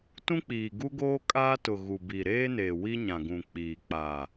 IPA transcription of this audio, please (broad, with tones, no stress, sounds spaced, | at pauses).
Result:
t ũ˦ k͡p iː˨ ɡ u˦ ɡ oː˦ kʼ aː˦ t ʊ˨ ɣ u˨ b i˨ ɾ eː˦ n eː˨ w i˦ ɲ ã˨ ɡ ũ˨ k͡p iː˨ k͡p a˨